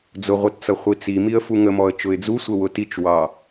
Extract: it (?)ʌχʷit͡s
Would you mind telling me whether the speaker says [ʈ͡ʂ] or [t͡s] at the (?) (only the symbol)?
t͡s